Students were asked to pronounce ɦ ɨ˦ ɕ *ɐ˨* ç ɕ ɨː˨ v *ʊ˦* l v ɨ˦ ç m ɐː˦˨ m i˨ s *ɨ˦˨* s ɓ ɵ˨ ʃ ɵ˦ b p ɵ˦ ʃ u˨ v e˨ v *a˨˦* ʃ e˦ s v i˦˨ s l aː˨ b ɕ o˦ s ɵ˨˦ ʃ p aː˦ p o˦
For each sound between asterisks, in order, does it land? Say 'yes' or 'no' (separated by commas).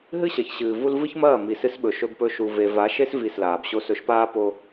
yes, no, no, yes